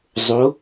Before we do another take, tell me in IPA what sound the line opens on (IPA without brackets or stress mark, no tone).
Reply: zˤ